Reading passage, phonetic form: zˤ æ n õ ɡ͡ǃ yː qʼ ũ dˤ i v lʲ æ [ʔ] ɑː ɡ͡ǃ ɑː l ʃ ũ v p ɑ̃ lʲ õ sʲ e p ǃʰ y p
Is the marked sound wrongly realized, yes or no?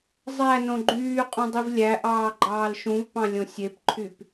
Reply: no